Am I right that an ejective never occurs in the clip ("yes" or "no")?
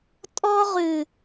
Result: no